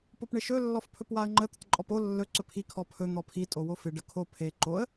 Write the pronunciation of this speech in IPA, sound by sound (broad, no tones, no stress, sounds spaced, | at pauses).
p o p ɳ ɪ ʃ ɵ lː ɔ f pʰ ɵ p w a ə̯ ŋ͡ǃ ə t̪ ə t ǃʼ ɔ p o lː ɵ ǀ ɵ pʰ i kʰ ɔ pʰ ɵ n̪ ɔ pʰ i tʼ o w o f ɪ ɖ ə kʰ o pʰ e ǃ o ə̯